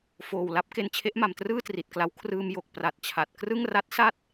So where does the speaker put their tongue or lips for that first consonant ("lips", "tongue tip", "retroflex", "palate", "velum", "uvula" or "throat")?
lips